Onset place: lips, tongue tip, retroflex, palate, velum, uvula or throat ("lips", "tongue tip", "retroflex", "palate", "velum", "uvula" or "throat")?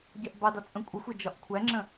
palate